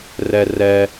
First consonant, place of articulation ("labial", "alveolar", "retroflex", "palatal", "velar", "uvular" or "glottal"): alveolar